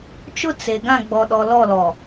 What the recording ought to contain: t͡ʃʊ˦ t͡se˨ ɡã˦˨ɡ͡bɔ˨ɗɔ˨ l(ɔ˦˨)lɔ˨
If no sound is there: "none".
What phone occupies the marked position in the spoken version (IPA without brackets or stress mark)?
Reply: ɔ˦˨